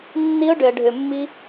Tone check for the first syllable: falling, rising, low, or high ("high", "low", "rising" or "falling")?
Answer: low